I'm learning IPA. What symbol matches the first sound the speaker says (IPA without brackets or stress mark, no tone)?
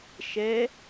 ʃ